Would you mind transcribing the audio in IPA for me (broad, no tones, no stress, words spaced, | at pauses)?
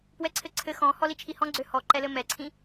pwɛǀʰɘǀʰɘ xɔ̃hɔ lit͡ʃʰihɔ̃ɡ͡ǀø hɔǃɛlɘ mɛǀʰĩ